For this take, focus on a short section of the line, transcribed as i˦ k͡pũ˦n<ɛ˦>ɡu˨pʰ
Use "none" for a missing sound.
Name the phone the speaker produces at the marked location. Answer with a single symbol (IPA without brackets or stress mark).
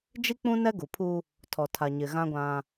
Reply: ɛ˦